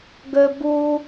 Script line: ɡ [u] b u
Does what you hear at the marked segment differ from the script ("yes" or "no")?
yes